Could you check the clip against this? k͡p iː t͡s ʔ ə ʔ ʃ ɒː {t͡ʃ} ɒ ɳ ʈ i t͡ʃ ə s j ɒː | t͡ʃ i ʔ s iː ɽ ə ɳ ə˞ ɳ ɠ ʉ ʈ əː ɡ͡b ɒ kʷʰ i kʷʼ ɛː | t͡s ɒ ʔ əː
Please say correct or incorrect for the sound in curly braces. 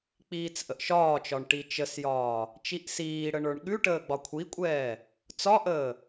correct